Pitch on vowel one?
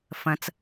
low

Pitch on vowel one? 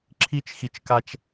high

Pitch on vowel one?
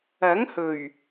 rising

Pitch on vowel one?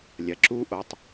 low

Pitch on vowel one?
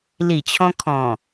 low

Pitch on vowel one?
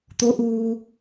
rising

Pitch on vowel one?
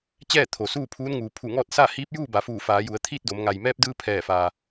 falling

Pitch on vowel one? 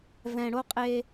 low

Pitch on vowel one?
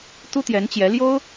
high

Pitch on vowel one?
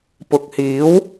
low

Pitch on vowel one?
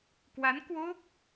rising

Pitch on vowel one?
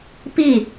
falling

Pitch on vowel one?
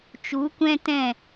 rising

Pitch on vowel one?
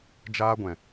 high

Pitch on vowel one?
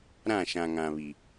falling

